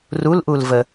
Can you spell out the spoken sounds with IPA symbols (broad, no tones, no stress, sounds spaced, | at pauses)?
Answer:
r u l ʔ u l v ə